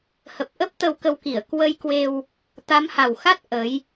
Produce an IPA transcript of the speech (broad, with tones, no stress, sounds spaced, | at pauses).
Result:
h ə˨˩ p̚ ʔ ə˦˥ p̚ t̪ ə˧ w k ə˧ w k i˧˩ ə̯ k w ə˧ j k w e˧ w | t̪ a˨˦ m h a˨˩ w x a˦˥ t̚ ʔ ə˨˦ j